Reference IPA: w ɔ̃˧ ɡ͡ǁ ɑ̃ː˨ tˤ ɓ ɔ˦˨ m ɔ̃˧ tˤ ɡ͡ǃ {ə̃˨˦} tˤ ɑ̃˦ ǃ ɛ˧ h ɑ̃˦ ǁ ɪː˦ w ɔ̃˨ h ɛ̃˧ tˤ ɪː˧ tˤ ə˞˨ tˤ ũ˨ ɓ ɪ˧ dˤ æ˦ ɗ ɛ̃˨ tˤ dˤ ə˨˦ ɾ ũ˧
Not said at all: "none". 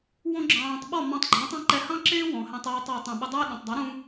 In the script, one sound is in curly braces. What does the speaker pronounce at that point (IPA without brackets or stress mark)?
ɔ̃˨˦